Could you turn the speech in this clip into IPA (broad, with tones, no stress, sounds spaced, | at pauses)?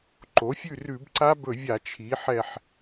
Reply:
ǃ o˩˥ fʲ ʉ˦˨ r ʉ˧˩˧ b ǀ a˦˥ b ɵ˧˩˧ vʲ a˧˩˧ t͡ʃʰ i˩˥ ħ ɛ˦˨ ħ